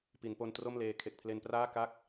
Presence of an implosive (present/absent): absent